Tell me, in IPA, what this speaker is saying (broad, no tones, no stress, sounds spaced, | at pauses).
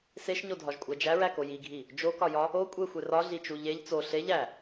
s e ʃ ɲ o dʱ ɒ ʒ kʷʼ æ d͡ʒ æ ɹ æ k o j i ɡʱ i | d͡ʒ o k ɒ j ɒ | o kʷʼ e xʷ e r ɒ ɮ i t͡ʃ u ʎ e ʎ t͡s o ɬ e ʎ æ